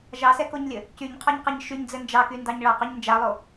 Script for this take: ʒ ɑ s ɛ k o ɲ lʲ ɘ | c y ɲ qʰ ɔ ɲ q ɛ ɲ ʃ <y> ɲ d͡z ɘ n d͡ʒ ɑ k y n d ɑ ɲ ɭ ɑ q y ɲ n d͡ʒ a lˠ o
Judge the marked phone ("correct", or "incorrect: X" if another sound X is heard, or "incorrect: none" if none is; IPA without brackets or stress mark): correct